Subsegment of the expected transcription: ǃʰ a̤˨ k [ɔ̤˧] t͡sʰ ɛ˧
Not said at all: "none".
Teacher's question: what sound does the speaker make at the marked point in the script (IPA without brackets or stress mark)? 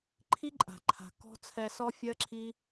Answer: ɔ̤˧